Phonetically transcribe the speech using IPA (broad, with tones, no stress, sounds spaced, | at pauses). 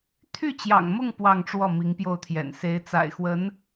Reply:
t̪ʰ y˥˩ t͡ɕ j ɑ̰˨˩ ŋ m ʊ˥˧ ŋ p w ɑ˥˧ ŋ ʈ͡ʂ w ɔ˥˩ m i˧˥ ŋ p j o˥˩ ʊ̯ t̪ʰ j ɛ̰˨˩ n s e˧˥ ɪ̯ t͡s a̰˨˩ ɪ̯ x w ə˧˥ n